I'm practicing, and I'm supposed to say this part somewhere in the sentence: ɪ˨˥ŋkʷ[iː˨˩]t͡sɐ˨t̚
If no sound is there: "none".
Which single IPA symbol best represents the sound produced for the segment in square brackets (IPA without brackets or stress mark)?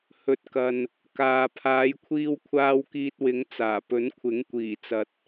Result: iː˨˩